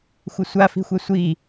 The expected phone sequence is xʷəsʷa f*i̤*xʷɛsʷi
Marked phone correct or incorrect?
correct